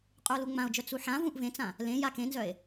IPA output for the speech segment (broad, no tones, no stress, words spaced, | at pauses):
qʼuo̯luŋ͡mão̯d͡ʒœ t͡suħã vũʔvẽt͡sã | lẽ jakẽnzœe̯